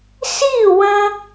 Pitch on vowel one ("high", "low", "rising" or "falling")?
falling